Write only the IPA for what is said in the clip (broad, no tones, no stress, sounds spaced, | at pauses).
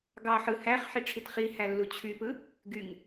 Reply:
ɡ ɑ ħ ɯ h æ χ ħ i ʈ͡ʂʰ i t χ i h æ lː u t͡ɕʰ y p ɯ | ɡ y ŋ